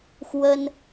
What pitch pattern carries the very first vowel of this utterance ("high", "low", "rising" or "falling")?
high